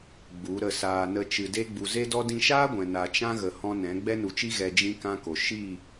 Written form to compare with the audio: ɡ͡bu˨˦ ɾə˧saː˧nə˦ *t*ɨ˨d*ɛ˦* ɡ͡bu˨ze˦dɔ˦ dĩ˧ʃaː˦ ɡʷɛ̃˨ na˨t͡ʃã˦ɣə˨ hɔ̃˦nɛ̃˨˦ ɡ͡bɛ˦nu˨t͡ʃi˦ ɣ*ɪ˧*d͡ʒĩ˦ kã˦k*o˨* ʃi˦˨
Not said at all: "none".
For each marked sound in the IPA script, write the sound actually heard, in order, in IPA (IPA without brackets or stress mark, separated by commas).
t͡ʃ, e˦, ɛ˧, o˨